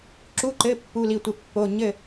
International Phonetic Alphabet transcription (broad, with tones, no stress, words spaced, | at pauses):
ǁu˧˥˧ǃɘ˧˥˧ pːu˧˥˧li˥˨tʷɘ˥˨pːo˧˥˧ ɲɘ˥˨